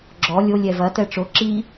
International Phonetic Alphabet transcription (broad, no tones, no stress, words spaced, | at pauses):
ɡ͡ǁɔ lʲo lʲɛvɐ tɛʈ͡ʂo ǁi